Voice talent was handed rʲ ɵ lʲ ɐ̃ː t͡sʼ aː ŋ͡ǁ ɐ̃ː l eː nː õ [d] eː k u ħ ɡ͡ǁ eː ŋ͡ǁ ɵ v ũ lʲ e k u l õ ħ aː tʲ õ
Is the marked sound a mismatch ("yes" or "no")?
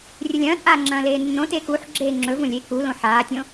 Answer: yes